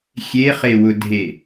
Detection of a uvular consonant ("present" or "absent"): present